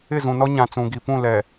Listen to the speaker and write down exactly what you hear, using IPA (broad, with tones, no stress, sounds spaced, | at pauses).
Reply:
ɪ˦˨ z ũ˨ n ɔ˦ ɲ ã˨ t͡s ũ˨ ɡ i˨ p ũ˦˨ l ɛ˨